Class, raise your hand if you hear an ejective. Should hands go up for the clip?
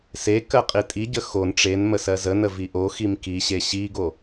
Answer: yes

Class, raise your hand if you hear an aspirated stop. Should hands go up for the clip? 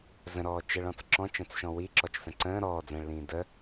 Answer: no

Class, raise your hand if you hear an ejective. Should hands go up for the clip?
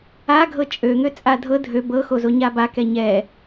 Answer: yes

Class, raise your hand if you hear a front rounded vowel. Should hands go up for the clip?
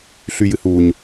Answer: yes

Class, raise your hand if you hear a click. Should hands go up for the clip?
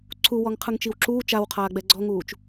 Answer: yes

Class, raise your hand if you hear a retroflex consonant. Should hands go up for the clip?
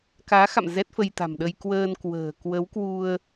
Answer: no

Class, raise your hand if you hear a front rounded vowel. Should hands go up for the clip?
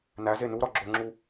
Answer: no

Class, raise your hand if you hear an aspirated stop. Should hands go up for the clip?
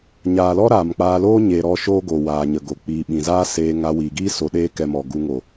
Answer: no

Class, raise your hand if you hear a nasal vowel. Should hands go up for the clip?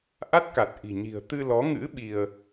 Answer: no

